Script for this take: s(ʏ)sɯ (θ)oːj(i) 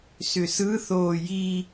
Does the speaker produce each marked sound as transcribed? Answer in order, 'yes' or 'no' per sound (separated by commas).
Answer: yes, yes, yes